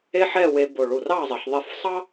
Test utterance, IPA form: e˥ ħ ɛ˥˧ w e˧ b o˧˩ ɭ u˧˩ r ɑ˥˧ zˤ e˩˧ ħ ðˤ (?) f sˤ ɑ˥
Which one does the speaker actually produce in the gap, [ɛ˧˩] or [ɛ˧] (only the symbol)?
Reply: ɛ˧˩